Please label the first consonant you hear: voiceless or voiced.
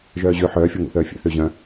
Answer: voiced